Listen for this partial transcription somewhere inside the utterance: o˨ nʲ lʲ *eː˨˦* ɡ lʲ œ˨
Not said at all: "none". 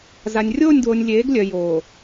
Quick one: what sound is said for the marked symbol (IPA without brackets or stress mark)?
eː˨˦